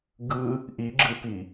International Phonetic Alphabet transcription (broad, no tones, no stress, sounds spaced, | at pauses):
ɡ ɯ | ʔ i ɡ͡ǁ ɯ p i